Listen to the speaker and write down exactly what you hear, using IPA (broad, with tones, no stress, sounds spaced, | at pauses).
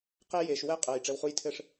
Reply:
q e˦ j e˩ ʃ w ɛ˦ qʼ ɜ˩ j ʈ͡ʂ ɘ˩ w χ u˨ j tʰ ɘ˨ ʂ